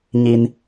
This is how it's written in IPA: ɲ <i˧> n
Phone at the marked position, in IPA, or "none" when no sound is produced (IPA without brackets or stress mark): i˧